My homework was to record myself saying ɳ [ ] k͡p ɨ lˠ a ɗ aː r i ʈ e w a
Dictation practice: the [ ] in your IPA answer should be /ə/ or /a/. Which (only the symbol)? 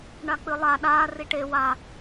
a